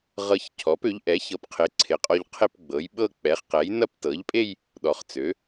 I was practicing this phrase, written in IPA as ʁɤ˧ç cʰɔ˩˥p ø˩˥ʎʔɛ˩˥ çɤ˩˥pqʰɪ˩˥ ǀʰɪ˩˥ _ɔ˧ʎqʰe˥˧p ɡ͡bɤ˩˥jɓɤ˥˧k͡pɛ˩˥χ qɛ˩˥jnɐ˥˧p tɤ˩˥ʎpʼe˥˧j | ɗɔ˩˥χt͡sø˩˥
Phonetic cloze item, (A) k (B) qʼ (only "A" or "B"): B